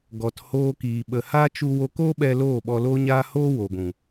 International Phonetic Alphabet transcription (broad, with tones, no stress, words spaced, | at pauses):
ɡɔ˨thoː˧kiː˨ ɓə˨haː˦ t͡ʃu˧ wo˧ko˦ɓɛ˧ loː˦˨ɓɔ˧loː˦ɲaː˦ ho˦ wo˨ɡʷũ˨